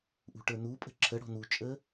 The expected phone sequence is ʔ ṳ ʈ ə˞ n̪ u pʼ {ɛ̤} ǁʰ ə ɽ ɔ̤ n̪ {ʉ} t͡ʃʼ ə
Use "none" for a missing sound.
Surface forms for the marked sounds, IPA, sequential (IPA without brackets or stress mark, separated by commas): ə̤, u